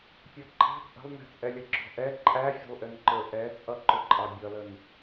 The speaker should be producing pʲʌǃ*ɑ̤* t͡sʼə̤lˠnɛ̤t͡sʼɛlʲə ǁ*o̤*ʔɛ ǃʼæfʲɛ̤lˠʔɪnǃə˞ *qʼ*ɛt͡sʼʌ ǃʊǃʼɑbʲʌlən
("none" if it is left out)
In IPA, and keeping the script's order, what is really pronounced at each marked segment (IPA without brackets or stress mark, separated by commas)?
ɑ̤, ɔ̤, ʔ